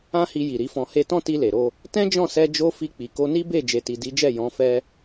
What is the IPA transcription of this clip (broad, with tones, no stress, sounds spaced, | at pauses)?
ã˦ h i˧ j i˨ ɾ i˨˦ f ɔ̃˧ h e˦ t ɔ̃˦ t i˧ l e˨ ɾ o˧ | t ɛ̃˦ d͡ʒ ɔ̃˦˨ s ɛ˧ d͡ʒ o˦ f i˧ k͡p i˨ k o˧ n i˦ b e˦˨ d͡ʒ e˨ t i˨ d i˨˦ d͡ʒ ɛ˦˨ j ɔ̃˨˦ f ɛ˦